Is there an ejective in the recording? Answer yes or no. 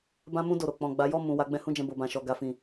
no